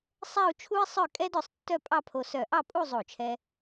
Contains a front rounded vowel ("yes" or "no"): yes